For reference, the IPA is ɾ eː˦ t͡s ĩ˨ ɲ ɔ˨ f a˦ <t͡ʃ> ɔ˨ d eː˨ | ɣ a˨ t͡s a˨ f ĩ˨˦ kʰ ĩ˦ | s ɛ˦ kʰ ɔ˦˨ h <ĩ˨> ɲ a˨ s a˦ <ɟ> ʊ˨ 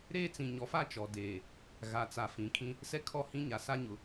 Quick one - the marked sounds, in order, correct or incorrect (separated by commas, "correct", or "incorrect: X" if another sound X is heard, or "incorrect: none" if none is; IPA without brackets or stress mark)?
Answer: correct, incorrect: ĩ˦, incorrect: ɲ